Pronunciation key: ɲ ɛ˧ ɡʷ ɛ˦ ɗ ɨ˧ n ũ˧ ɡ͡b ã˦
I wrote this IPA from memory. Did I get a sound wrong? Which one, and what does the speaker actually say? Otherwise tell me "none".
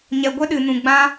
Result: none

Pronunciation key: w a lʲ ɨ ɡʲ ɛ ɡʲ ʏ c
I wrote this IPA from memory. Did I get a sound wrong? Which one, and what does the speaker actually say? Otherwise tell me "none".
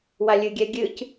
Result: ʏ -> ɨ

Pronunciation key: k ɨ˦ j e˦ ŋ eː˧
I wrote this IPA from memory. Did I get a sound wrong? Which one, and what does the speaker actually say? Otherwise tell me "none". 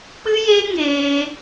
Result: k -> k͡p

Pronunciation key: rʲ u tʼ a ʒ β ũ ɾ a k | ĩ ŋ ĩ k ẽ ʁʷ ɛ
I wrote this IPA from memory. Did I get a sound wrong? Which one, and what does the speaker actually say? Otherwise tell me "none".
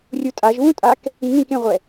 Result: ɾ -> tʼ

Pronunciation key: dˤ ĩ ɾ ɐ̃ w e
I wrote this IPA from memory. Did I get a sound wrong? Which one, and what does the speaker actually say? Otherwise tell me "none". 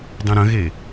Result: w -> ɣ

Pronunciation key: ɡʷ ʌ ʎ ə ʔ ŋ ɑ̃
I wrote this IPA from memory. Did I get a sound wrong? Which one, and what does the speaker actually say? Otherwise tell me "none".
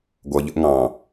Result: none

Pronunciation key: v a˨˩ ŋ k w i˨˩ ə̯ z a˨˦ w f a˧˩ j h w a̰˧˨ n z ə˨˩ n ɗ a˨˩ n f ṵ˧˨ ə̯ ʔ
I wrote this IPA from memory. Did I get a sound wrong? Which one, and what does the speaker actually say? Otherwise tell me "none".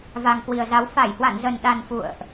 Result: none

